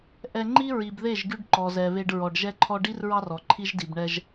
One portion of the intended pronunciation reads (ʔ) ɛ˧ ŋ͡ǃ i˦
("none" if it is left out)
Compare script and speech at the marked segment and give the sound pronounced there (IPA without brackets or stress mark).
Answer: ʔ